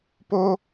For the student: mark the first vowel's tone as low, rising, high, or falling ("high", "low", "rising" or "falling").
high